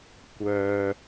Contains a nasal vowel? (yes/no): no